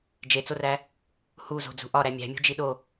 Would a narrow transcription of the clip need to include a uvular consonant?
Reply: no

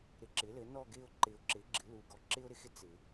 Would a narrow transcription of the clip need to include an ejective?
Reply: no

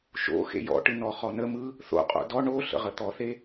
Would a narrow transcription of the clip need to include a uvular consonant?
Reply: yes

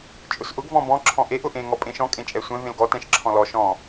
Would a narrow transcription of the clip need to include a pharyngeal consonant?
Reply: no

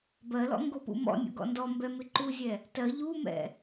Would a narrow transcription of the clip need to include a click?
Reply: yes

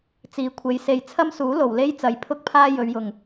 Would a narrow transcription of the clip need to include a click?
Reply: no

